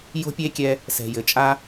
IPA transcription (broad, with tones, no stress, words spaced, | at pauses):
jo̤˦pʲe˦kʲɛ˧ | sɛ̤˨jɘ˨t͡ʃʼa˦